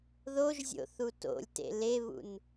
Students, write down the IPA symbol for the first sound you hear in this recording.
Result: ð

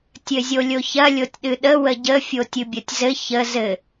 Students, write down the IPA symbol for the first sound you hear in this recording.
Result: tʲ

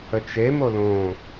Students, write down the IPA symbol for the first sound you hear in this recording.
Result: ə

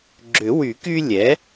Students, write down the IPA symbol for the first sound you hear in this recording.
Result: ɡ͡ǁ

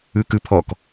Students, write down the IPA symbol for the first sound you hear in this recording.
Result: ʉ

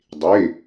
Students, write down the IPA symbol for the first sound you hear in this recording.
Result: dˤ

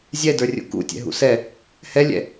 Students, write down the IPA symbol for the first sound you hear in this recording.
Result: zʲ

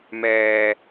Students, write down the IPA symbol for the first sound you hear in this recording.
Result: m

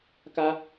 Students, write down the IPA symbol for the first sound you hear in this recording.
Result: k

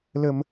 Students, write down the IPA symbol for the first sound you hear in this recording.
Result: l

